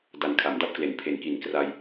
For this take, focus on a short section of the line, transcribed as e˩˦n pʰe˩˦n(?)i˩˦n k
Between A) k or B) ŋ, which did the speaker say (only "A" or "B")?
A